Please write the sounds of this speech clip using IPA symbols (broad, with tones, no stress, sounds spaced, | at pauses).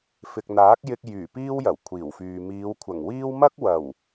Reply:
f ɪ˨ k̚ n̪ aː˨˥ k̚ j ɪ˧ k̚ j yː˨˩ p iː˥ w j ɐ˨˩ w kʷʰ iː˨˩ w f yː˨ m iː˨˧ w kʷʰ ɐ˨˩ ŋ w iː˥ w m ɐ˥ k̚ w ɐ˨˩ w